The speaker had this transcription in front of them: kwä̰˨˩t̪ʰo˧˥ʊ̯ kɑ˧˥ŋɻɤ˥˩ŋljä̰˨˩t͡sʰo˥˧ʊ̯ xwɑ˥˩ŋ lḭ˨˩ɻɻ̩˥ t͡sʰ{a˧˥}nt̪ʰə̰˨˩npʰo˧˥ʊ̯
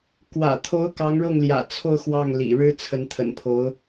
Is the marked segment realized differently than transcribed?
yes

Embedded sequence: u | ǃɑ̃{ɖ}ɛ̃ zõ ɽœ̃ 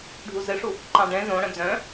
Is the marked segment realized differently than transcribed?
no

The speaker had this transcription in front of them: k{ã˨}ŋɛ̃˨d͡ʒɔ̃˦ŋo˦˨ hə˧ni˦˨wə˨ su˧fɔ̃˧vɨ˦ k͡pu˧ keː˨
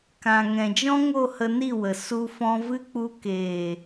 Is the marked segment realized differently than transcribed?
no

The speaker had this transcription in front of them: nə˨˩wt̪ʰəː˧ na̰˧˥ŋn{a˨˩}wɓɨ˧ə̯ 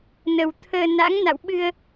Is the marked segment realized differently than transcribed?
yes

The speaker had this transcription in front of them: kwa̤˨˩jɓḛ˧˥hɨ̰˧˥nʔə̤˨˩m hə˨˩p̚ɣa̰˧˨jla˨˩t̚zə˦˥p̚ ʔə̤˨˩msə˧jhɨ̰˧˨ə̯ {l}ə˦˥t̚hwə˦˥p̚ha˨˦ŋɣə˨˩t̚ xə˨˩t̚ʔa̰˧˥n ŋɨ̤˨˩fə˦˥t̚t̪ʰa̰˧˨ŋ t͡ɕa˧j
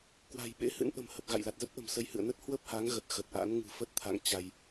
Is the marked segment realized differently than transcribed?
yes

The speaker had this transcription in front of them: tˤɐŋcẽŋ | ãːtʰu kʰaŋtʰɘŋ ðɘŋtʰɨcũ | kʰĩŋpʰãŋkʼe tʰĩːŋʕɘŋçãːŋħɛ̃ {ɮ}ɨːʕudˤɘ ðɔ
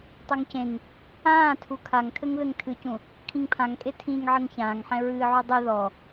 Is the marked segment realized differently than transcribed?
yes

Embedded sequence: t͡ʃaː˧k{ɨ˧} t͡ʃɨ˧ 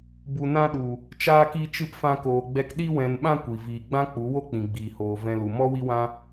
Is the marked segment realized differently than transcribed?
yes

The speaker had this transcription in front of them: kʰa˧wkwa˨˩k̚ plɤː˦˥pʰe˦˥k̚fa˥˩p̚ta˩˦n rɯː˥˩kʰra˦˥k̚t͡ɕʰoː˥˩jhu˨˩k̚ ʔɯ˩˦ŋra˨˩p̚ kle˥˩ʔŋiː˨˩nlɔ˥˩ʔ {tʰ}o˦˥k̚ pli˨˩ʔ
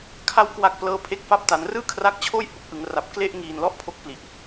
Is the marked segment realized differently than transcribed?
yes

